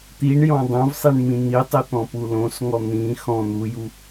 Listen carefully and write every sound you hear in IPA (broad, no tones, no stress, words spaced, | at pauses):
t̪iɳjɔ̃ dˤõvsˤiɳmĩ n̪itˤit̪ɔ̃pu lõsŋɔ n̪ĩ xɔ̃ n̪uju